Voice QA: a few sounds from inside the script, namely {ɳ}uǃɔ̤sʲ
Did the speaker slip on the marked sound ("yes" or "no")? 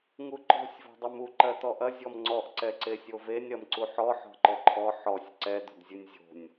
yes